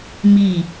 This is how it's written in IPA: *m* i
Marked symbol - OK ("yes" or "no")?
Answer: yes